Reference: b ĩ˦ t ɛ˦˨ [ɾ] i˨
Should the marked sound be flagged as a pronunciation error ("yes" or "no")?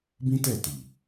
yes